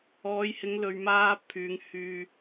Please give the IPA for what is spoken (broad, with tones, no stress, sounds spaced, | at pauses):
ɔː˨˧ j h ɪ˨˧ ŋ l ɵ˨ ɥ m aː˧ pʰ yː˨˧ ŋ h yː˧